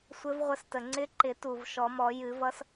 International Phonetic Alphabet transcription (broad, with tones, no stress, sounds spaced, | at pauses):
sʷ ɘ˧˥ v ʁʷ ə˦˨ s t ə˨˩ ŋ͡ǀ ɪ˧˥ ǃ ɪ˨˩˦ t u˨˩ v ʃ ɔ˨˩˦ m ɔ˨˩˦ j ɨ˨˩˦ v ʌ˧˥ s